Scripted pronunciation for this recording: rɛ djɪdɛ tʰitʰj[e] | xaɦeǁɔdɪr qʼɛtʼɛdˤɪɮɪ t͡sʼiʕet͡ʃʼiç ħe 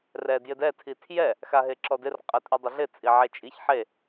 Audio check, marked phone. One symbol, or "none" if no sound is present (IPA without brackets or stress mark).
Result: ɛ